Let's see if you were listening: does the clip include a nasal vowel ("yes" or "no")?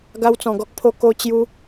yes